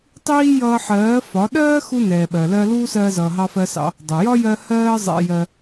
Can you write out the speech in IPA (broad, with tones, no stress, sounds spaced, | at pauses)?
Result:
tˤ iː˦ j ʌː˧ ħ ɜː˨˦ f ɒ˨˦ ɗ ɜː˦ x u˧ n ɛː˨ ɓ ɜ˨ l ɜ˧ l uː˦ s ɜː˧ z ʌː˨ ɦ ɑ˧ f ɜ˧ s ɑ̰˧ | dˤ ʌ˨ j ɒ˦ j ɜ˧ h ɜː˧ zˤ ɛ̰˧ j ɜ˧